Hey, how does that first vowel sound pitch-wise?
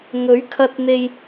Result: rising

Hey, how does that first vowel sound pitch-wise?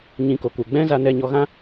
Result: rising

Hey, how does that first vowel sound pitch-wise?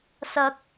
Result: rising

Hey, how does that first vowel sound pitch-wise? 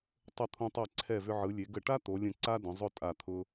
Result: falling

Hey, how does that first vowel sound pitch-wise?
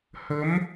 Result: rising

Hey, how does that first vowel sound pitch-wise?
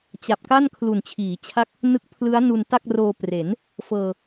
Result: low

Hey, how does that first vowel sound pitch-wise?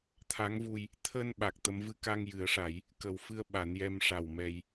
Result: rising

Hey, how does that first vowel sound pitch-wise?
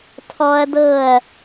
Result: high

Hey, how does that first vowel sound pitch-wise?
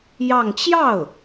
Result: falling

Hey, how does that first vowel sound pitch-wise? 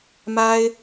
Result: high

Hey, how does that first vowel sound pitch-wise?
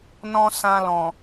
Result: high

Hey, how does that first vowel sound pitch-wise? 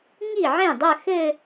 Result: falling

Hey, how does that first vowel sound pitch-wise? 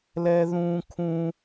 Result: high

